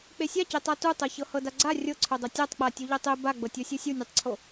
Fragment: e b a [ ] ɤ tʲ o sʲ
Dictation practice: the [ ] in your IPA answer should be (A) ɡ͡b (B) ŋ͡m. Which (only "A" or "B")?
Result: A